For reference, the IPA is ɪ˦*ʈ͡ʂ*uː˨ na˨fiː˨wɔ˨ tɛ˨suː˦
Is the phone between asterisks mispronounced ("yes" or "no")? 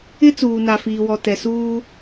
yes